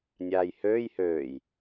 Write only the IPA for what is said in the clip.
nʲaːjhøːj høːj

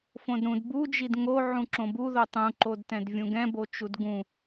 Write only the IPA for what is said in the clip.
fõdɾũd bud͡ʒid ŋo ʕũǁõbuðo tˤũǃodtɛ̃d vʲũɡɛ̃bot͡ʃud ɡũ

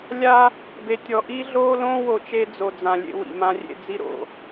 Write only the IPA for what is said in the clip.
lʲa˦ | be˨tʲɔ˨ ʔi˦ɮoː˦ lõː˦wo˨ t͡ʃe˦d͡zo˨d͡zã˨ lʲḛ˦wḭ˨mã˦ rʲḛ˦d͡zi˦ ɾo̰˨

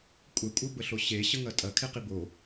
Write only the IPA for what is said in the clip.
kʷʼɛkʷʼʌbəɬo ɕeɕəŋɐ tʼɐkʰeqi bo

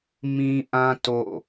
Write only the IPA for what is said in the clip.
mĩ˦ʔã˦ to̰˦˨

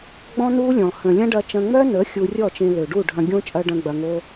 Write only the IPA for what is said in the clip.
ɡ͡bɔ̃˦nu˦lʲɔ̃˨ hə̃˨lʲɐ̃˦ɖɐ˧ t͡ʃɐ̃˧ŋ͡mœ˦nə˨˦ xʲu˧rʲɔ˦˨t͡ʃẽ˧ lø˨ɖu˦˨ɖʱɐ̃˧ɡʲõ˦ t͡ʃʼɐ˦ɖɐ̃˦ɡ͡bɐ˧ŋo˦

